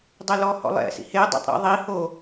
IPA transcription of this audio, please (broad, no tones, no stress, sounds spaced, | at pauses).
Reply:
dˤ e l ɔ h ɔ̰ lˠ ɛ̰ s ḭ h e dˤ ɛ̰ tˤ ɾ ɔ̰ ðˤ i h o